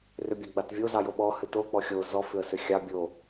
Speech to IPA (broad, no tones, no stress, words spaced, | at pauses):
rʏbʲɑɡ͡batvʲo zɑjoɓɔ hɨto k͡pɔxʲo zɔ fʏə̯sʏxʲɑ bʲo